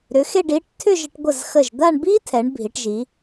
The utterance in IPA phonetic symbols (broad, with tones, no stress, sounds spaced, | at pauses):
ɾ ʏ˩˧ x e˥˧ ɖ i˩˧ ʈ tʰ ʏ˥˧ ʒ ə˧ ʈ ɡʷ ə˧˩ z x ə˧˩ ʒ d̪ a˥˧ ɳ b i˥ tʰ ɛ˩˧ ɳ bʱ i˩˧ ʈ ʒ i˩˧